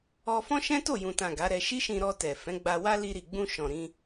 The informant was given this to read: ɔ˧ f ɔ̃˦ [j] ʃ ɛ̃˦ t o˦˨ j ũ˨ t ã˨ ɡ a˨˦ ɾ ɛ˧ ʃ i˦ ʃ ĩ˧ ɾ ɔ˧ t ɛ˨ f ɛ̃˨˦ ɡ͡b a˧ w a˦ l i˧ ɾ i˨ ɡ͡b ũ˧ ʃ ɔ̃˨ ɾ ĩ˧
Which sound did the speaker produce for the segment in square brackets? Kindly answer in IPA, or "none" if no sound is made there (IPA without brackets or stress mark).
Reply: none